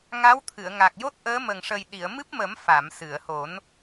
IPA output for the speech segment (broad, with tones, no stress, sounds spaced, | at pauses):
ŋ a˧˥ w t̪ʰ ɨ˨˩˨ ə̯ ŋ a˨˩ k̚ j o˦˥ t̚ ʔ əː˧˥ m ə˨˩ ŋ ʂ ə˨˩ j ɗ i˨˩˨ ə̯ m ɨ˦˥ p̚ m ə˨˩˦ m f a˨˩˨ m s ɨ˨˩˨ ə̯ h o˨˩˦ n